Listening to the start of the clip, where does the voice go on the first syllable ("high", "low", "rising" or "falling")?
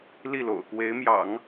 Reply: falling